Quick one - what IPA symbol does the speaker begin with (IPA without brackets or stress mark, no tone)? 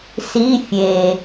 s